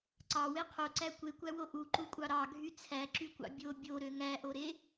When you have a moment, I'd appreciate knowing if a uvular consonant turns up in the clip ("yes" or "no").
yes